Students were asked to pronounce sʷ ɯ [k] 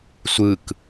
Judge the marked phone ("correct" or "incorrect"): correct